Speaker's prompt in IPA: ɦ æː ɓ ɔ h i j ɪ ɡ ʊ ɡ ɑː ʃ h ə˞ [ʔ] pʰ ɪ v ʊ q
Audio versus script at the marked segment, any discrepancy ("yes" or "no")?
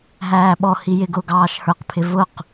yes